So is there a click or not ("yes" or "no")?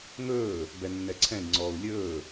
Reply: yes